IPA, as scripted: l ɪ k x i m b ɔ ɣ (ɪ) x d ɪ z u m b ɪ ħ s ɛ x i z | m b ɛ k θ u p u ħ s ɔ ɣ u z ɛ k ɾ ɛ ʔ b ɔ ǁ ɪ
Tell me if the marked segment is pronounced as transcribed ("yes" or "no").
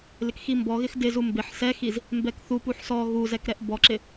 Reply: yes